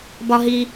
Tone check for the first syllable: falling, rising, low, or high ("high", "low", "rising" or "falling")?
high